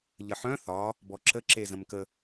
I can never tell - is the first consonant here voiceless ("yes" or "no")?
no